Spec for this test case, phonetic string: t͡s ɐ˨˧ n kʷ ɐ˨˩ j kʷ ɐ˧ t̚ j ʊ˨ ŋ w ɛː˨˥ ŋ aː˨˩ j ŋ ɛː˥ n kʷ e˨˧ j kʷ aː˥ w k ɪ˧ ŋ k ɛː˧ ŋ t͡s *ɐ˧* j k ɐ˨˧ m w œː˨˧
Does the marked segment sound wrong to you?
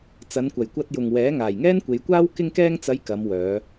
yes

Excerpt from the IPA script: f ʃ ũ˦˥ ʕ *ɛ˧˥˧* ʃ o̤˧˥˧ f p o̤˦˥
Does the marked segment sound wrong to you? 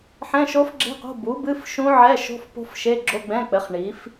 no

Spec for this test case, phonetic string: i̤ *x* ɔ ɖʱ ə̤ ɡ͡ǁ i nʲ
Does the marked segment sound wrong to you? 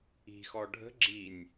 no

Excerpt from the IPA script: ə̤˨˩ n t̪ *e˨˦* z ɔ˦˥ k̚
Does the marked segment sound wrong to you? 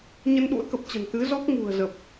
yes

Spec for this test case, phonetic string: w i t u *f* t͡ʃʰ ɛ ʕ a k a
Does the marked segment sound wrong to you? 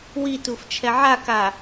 no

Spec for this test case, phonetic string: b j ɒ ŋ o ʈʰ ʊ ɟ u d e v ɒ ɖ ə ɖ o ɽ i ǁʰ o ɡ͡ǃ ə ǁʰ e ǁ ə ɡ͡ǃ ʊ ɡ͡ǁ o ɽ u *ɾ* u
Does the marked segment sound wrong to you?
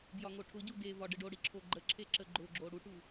yes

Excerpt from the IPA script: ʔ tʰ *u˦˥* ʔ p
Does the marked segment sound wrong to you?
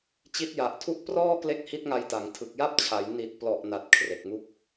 yes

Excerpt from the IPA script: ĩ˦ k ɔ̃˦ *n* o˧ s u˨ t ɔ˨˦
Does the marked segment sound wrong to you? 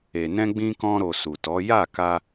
yes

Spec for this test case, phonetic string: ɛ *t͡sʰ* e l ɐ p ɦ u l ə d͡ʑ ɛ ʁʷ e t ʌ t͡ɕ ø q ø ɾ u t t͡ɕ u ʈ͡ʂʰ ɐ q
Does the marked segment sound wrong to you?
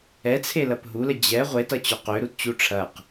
no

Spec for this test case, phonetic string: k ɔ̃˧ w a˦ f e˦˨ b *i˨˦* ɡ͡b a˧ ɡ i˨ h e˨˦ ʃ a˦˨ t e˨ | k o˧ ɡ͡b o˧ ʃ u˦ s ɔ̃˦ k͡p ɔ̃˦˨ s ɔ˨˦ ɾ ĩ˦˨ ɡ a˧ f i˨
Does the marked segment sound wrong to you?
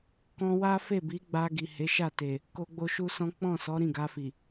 no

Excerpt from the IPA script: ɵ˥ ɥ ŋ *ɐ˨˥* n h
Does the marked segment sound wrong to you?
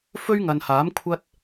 yes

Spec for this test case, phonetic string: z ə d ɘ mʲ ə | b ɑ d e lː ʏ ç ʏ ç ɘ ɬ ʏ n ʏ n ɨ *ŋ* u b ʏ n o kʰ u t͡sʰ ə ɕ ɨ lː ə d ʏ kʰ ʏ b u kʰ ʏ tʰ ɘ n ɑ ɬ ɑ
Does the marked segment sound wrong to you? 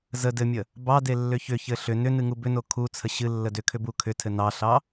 no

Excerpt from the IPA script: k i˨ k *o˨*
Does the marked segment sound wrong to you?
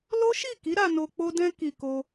yes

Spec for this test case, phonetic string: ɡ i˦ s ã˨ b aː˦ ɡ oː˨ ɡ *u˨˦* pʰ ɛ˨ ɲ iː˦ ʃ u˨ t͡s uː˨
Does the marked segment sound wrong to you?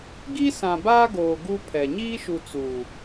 yes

